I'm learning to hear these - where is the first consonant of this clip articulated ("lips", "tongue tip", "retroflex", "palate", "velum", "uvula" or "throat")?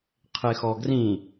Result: uvula